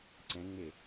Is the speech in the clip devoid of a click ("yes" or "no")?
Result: no